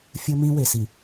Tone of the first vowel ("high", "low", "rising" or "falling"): high